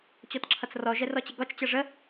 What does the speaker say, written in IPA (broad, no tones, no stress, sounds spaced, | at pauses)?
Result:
t͡ɕ ɔ t ǁʰ ʌ t͡s r ɔ ʒ ɛ r ɔ t͡ɕ ə ɡ ɔ t͡ʃ t͡ɕ ʌ ʐ ə